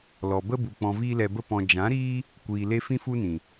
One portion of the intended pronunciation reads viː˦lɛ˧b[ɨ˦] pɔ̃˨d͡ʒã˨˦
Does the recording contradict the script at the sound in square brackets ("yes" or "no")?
yes